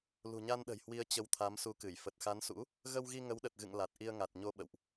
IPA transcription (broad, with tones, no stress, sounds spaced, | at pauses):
l ṳ˨˩ ɲ a˧ n ɗ ə̤˨˩ j h w i˨˦ ə̯ t͡ɕ ə˨˦ w t̪ʰ a˨˦ m s u˨˦ k ɨ˧˩ j f ə˨˩ t̚ x a˨˦ n s ṵ˧˥ | ɣ ə˧ w ɣ i˧ ŋ ə˨˦ w ɗ ə˨˩ t̚ ɣ ɨ̰˧˨ ŋ l a˨˩ t̚ ʔ i˧ ə̯ ŋ a˨˩ t̚ ɲ o˧ ɓ ə̰˧˨ w ʔ